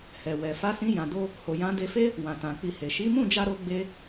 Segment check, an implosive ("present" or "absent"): absent